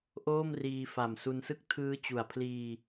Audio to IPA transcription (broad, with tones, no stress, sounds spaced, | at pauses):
ʔ oː˥˩ m r iː˧ f a˨˩ m s u˧ n s ɯ˥˩ k̚ tʰ ɯː˦˥ t͡ɕ u˨˩ a̯ pʰ l iː˧